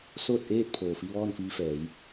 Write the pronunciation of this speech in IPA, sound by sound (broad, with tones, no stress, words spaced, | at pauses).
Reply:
soː˥˨t̚ʔeː˥˨t̚pʰoː˩fi˧ ʋɔː˥˨nfiː˧fɛː˩˧j